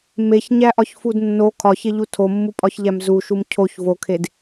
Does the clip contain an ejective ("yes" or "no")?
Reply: yes